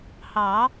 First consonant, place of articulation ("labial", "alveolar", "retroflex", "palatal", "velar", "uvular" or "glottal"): glottal